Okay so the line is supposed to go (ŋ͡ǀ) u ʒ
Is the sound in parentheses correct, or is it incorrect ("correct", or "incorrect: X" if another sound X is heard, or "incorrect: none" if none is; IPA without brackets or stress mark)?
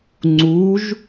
correct